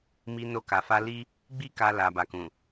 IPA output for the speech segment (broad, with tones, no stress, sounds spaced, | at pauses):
m i˧ n o˧ k a˨ f a˧ l i˦ | ɡ͡b i˦ k a˧ l a˨ b a˨ k ũ˨